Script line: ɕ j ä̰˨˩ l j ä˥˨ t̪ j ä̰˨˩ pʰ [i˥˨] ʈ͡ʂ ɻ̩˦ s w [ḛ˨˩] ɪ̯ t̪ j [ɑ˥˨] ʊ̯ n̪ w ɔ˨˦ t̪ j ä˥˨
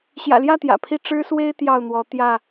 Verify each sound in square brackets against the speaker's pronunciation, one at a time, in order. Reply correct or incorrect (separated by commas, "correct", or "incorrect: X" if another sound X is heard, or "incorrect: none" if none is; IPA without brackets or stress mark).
correct, incorrect: e˦, correct